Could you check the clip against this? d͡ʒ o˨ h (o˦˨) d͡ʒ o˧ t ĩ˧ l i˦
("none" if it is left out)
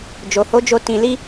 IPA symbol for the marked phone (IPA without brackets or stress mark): o˨˦